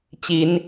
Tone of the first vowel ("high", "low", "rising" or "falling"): rising